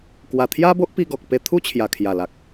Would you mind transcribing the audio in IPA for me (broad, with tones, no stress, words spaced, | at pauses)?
kwa˨˩t̪ʰja˦bo˦ʔpi˧ ɡɔ˨k̚ pe˧t̪ʰu˦ t͡ɕʰja˨˩kʰja˨˩ la˨k̚